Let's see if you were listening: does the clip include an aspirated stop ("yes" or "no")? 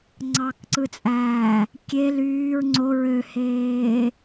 no